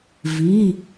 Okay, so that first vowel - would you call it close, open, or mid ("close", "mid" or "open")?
close